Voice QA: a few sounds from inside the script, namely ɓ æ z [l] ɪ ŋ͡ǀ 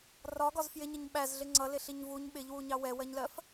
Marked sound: incorrect: ɮ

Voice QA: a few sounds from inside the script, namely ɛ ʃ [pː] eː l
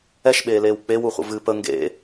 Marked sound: incorrect: ɓ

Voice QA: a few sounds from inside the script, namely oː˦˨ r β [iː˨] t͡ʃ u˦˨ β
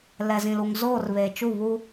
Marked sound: incorrect: eː˨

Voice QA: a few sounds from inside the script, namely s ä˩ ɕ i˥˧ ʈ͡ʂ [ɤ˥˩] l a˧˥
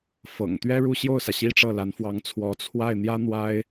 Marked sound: correct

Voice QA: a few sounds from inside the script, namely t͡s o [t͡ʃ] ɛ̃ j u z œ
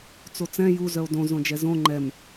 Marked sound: incorrect: t͡s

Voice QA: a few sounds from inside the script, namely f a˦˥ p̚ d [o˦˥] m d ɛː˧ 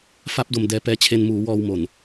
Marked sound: incorrect: o˧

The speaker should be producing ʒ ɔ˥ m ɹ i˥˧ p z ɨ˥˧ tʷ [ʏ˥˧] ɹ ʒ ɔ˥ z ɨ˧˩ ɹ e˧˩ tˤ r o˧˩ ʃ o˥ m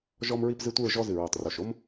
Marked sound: incorrect: ɨ˥˧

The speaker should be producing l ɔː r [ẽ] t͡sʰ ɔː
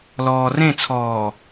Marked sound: correct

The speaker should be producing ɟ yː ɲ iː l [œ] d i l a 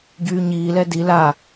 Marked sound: incorrect: ɛ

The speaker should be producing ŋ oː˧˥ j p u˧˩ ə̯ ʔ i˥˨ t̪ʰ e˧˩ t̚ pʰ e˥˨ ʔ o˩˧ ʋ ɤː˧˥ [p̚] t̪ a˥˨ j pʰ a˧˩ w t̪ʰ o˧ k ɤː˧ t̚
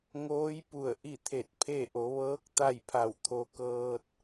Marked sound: incorrect: k̚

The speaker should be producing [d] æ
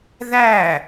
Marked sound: incorrect: ð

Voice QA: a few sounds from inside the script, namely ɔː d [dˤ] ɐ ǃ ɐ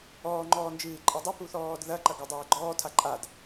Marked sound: incorrect: ð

